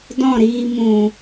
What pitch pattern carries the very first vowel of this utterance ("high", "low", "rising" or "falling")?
falling